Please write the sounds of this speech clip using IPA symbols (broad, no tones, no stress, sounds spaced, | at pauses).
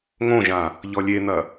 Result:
ŋ õ ʒ ã | ʎ ɔ lʲ e n̪ ɐ